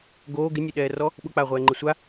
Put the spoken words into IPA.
ɡ oː ɡ ɪ nʲ ʊ ɗ ɛː r ɔ | ɓ ʊ k͡p aː ʁʷ ɛː ŋ͡ǃ ɪ sʷ a

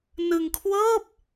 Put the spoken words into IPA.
n ɯ˧ ŋ kʰ w ɤː˥˩ p̚

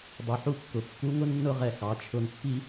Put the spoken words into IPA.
dˤ u˩ ħ u˧˥ kː ʊ˩ kː u˧˥ ŋ ʊ˥ nː ʊ˥ ʁ ɛ˧ x ɑ˩˧ t͡ʃʰ ʊ˧ n pː i˥

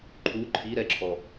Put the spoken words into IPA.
ǃʰ u ǃʰ i ɾ ɛ ǁʰ ɔ

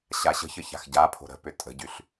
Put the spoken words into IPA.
ɕ a ɕ ə̤ ç ə ç a̤ x ɟ a pʰ o̤ ɾ ə̤ p ʏ tʼ ə̤ ɟ y ɬ

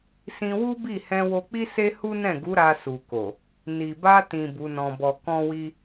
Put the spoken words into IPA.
s ĩ˧ w u˦ b i˦˨ h ɛ̃˧ w o˧ k͡p i˦ s e˦ h u˦ n ɛ̃˦˨ ɡ u˨˦ ɾ a˧ s u˨ k o˨ | n i˨ b a˧ t ĩ˨ b u˨˦ n ɔ̃˧ b ɔ˧ k ɔ̃˦ w i˦

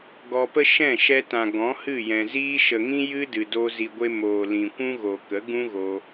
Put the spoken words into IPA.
ɡ ɔ˧ p ə˦ ʃ ɛ̃˦˨ ʃ ɛ˧ t ã˨ ɡ ɔ̃˨˦ h ɨ˦˨ j ɛ̃˨ z iː˦ ʃ ə˨ ŋ ĩ˦ j ɨ˦ d ɨ˨ d o˧ z i˨ ɡʷ e˧ m oː˨ l ĩ˨ kʷ ũ˦ ɣ o˨ k ə˨˦ ɡ ũ˦ ɣ o˧

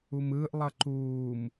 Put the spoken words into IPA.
u m ɯː ʔ lˠ ʌ ǃ uː m

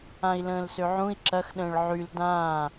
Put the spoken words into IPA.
ã i̯ l ə̃ː l s ø ʕ ũ i̯ ǁ ɐ x ɗ ə̃ː ɭ ʕ y l d ãː

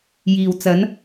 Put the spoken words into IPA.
j iː˨ w t͡s ɐ˨˧ n

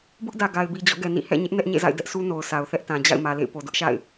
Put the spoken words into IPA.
b ʊ˦ ʔ d ä˨ ɡ a˨ ɪ̯ b i˨ d͡ʑ ɔ̰˦˨ ɡ ɛ˨ n ḭ˦˨ h ɛ̰˦˨ ɲ ɪ˦ ʔ n ɛ˦ ʔ ɲ ḛ˦˨ z a̰˦˨ ɪ̯ d ɛ˦ ʔ sʰ u˦ n o˨ ʊ̯ s a˨ ʊ̯ θ ɛ˦ ʔ t ã˨ d͡ʑ a̰˦˨ ɪ̯ m ä˨ l ḛ˦˨ ɪ̯ p o˨ d ʊ˦ ʔ ʃ a̰˦˨ ɪ̯

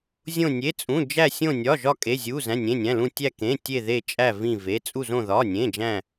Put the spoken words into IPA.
zʲ õ˧˩ nʲ e˩˧˩ t͡sʼ ũ˩˧˩ d͡ʒ æ˧˩ sʲ õ˧˩ nʲ ɒ˩˧˩ ʒ ɒ˧˩ kʼ e˩˧˩ zʲ u˩˧˩ z æ̃˩˧˩ nʲ ẽ˩˧˩ nʲ æ̃˩˧˩ l ũ˧˩ tʲ æ˧˩ k ẽ˩˧˩ tʲ e˧˩ ð e˧˩ t͡ʃʼ æ˧˩ v ĩ˧˩ v e˩˧˩ t͡sʼ u˧˩ z õ˧˩ ð ɒ˩˧˩ nʲ ẽ˩˧˩ d͡ʒ æ̃˧˩

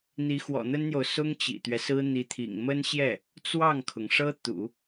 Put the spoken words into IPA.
n̪ i˧˥ x w ɔ̰˨˩ n̪ ə˥ n n̪ j o˨ ʊ̯ s ʊ˥ ŋ t͡ɕ ḭ˨˩ t̪ ɥ ɛ˦ s ɹ̩˥ n̪ i˧˥ t̪ʰ ḭ˨˩ ŋ m ə˥ n ɕ j ɛ˥˩ | t͡s w ɑ˥˩ ŋ kʰ ʊ˩ ŋ ʂ ɤ˥ t̪ ṵ˨˩˦

